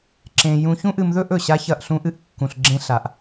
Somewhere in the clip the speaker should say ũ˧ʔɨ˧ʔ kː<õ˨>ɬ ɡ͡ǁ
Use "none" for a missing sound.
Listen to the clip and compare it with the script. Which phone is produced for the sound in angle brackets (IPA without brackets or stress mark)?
ũ˨